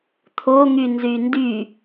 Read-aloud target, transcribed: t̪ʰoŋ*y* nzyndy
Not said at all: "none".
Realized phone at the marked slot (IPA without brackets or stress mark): y